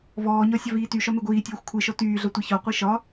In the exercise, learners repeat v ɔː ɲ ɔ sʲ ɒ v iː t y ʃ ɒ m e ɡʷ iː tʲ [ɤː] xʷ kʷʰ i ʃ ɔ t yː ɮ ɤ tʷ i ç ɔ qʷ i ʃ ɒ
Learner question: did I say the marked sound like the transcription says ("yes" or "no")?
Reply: yes